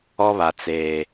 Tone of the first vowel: high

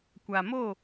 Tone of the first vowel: low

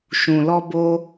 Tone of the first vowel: low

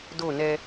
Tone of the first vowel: falling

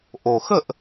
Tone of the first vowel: low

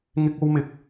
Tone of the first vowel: high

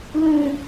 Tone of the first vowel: low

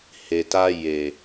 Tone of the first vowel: low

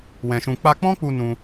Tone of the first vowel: low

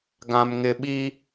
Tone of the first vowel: low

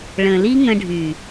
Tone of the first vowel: low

